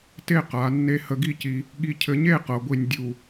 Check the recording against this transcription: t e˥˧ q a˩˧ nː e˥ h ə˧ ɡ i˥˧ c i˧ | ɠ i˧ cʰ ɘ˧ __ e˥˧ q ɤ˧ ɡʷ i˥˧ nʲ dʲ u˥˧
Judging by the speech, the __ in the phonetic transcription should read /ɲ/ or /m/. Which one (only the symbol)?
ɲ